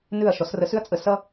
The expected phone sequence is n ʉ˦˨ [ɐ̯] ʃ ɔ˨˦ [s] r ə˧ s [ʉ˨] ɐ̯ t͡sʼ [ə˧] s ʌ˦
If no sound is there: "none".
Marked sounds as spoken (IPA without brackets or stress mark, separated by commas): ɐ̯, s, ʉ˦, ə˧